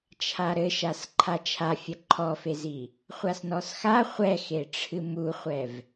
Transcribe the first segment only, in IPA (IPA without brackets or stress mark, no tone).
t͡ʃʰ